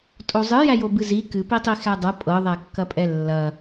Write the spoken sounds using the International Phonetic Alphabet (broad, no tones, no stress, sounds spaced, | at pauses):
tʼ o zˤ ɨ j æ j o b ɨ z i k ɨ p i tˤ i x æ dˤ ɤ pʼ ɤ ðˤ æ kː ɐ pʼ ɛ lː ɐ